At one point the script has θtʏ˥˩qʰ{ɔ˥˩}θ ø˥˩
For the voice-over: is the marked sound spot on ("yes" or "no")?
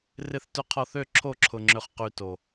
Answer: yes